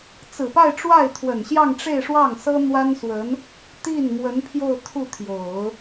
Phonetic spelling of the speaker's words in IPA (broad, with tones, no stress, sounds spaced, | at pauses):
t͡s ɹ̩˨˩ p a˥˧ ɪ̯ ʈ͡ʂ w a˥˩ ɪ̯ t̪ʰ w ə˨˩ n ɕ j ɑ˥˧ ŋ ʈ͡ʂ e˥˧ ɪ̯ ʂ w ɑ˥˩ ŋ s ɤ˥ n̪ w a˥ n s w ə˧˥ n | t̪ i˥˩ n m w ə˧˥ n pʰ j o˥˧ ʊ̯ t̪ʰ u˥˩ t̪ʰ j o˨˩˦ ʊ̯